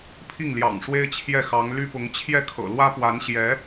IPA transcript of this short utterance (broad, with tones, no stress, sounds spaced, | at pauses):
pʰ i˥˩ ŋ l j ɑ̰˨˩ ŋ ʂ w e˥ ɪ̯ t͡ɕʰ j ɛ˥˩ x ɑ˧˥ ŋ l y˥ p ʊ˧˥ ŋ t͡ɕʰ j ɛ˥˩ kʰ ɤ̰˨˩ l w ä˥ p w a˧˥ n ɕ j ɛ˧˥